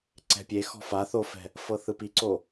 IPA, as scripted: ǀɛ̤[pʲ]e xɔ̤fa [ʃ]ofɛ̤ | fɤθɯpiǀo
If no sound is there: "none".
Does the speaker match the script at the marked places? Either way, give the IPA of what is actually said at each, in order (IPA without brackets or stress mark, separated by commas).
pʲ, θ